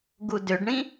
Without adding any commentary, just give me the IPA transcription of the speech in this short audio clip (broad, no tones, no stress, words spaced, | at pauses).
ɡudʏɖɳĩ